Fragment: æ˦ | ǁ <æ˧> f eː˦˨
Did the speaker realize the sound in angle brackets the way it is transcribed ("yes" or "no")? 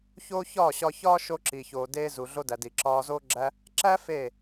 no